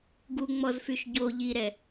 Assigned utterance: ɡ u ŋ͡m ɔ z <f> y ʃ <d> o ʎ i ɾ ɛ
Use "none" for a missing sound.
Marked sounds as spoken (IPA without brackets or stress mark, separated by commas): f, ɟ